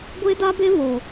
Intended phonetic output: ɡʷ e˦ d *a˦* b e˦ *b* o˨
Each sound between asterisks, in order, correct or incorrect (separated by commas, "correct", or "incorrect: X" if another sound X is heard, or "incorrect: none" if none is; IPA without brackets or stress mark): correct, incorrect: β